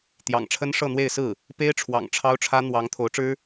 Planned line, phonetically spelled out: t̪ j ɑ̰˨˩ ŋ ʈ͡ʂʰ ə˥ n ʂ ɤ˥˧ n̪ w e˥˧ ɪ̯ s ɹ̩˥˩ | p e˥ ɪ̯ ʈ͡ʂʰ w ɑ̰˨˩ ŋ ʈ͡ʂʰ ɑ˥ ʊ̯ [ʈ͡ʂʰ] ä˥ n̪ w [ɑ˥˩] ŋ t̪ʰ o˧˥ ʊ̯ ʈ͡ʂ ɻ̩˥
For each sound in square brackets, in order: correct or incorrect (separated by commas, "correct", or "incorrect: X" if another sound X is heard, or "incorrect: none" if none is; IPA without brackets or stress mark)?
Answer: correct, incorrect: ɑ˧˥